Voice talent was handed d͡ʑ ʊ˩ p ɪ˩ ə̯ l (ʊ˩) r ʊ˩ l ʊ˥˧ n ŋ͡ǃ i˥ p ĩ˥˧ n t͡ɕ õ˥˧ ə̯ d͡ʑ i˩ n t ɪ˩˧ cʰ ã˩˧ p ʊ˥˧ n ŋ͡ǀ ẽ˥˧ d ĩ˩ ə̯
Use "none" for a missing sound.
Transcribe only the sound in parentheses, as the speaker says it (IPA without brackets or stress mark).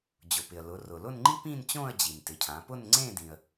ʊ˩˧